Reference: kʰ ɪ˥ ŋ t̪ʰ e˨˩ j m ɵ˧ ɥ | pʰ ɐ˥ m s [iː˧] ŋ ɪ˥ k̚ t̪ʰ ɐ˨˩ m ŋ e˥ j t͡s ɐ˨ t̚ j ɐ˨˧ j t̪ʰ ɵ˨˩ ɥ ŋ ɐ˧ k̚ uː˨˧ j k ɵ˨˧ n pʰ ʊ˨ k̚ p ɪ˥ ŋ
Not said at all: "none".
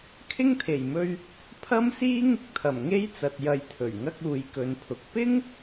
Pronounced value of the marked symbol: iː˥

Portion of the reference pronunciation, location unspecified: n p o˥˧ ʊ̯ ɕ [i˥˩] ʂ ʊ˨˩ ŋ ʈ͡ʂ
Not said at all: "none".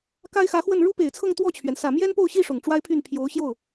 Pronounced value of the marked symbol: i˥˩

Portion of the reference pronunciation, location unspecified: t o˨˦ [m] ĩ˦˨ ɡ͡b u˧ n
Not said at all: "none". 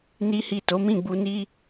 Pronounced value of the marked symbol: m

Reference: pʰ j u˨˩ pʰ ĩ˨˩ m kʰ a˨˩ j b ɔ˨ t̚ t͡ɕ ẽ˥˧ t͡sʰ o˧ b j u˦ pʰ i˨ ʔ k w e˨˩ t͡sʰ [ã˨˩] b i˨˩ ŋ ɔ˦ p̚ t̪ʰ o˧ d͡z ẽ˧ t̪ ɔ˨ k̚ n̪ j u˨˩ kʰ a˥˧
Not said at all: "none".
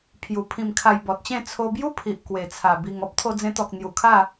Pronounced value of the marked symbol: a˨˩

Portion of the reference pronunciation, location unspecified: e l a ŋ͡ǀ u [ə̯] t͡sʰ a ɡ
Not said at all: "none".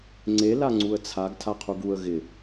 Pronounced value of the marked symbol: ə̯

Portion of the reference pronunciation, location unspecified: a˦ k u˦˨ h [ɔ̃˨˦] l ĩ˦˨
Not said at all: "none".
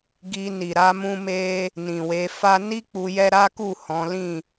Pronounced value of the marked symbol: ɔ̃˨˦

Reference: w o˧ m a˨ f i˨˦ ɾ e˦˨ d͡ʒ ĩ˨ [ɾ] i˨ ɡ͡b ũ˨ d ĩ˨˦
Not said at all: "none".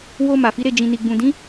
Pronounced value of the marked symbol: n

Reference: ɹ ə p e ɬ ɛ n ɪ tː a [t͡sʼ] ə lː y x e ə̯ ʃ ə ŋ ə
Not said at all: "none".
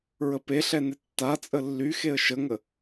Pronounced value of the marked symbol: t͡sʼ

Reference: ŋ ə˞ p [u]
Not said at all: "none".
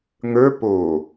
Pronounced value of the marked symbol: o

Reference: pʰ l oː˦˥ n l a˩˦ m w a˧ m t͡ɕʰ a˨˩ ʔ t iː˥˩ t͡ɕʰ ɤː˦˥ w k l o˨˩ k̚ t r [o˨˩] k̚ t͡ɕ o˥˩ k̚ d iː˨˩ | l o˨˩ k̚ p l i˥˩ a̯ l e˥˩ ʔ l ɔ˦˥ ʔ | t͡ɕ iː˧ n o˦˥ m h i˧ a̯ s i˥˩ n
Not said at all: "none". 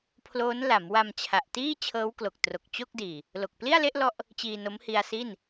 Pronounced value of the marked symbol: o˨˩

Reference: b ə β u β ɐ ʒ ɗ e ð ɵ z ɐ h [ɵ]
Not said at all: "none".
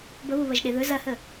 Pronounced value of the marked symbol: ə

